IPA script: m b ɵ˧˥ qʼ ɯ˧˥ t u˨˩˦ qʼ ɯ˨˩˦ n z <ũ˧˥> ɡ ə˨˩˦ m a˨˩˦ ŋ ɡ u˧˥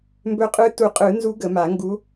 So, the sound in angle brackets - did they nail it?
no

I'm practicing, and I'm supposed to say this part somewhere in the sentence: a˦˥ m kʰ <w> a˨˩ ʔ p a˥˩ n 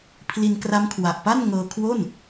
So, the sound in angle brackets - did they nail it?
yes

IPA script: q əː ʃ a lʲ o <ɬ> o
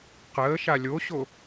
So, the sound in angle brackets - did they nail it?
no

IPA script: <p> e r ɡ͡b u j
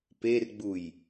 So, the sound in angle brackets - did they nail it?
yes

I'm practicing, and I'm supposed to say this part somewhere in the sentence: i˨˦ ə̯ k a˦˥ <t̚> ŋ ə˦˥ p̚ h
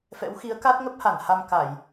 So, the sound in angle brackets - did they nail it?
yes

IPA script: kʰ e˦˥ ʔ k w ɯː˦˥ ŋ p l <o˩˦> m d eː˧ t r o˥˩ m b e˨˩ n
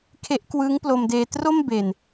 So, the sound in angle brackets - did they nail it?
no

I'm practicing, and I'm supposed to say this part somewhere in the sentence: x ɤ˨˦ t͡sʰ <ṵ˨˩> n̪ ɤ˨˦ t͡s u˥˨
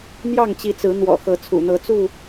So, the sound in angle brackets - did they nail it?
yes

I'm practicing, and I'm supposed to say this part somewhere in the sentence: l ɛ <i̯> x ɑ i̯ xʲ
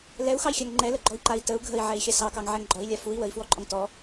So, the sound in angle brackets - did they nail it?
no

